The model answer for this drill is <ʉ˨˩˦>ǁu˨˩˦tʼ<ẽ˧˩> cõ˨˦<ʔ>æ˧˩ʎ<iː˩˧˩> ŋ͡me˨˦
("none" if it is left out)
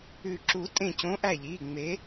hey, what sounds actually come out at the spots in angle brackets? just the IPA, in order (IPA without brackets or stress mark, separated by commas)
ʉ˨˩˦, ẽ˧˩, ʔ, iː˩˧˩